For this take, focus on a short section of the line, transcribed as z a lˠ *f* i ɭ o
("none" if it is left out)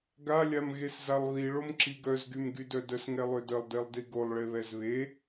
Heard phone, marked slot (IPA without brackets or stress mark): β